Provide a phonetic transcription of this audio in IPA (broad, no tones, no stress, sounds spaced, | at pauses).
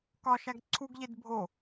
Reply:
k ɒ ʃ æ ɡ ǀʰ u ɡ ʎ e d bʱ o